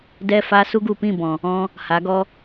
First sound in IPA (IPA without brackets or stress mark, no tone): d